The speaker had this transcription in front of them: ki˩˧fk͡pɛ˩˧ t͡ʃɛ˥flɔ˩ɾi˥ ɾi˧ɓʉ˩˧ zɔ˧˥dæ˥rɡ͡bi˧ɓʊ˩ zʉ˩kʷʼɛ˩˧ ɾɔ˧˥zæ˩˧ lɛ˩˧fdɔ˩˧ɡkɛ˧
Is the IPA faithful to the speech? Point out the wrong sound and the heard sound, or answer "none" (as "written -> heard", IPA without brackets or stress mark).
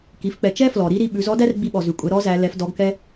ʊ˩ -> ɔ˩